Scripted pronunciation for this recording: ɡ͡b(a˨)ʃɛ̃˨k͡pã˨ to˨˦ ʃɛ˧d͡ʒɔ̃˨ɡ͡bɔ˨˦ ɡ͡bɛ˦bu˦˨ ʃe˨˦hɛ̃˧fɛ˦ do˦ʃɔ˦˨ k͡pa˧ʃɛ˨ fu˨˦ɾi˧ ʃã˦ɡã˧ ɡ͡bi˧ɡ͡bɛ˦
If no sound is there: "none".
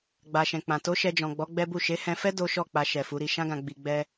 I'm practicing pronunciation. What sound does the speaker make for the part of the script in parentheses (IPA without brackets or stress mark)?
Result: a˨